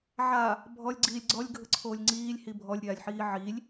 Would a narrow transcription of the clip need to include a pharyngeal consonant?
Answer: yes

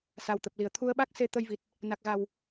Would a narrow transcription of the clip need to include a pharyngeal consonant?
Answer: no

